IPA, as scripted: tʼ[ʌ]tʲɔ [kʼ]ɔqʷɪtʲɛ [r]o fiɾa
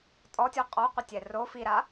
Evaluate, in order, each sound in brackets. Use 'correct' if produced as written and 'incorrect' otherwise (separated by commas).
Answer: incorrect, incorrect, correct